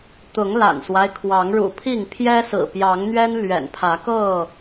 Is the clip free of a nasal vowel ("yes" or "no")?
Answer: yes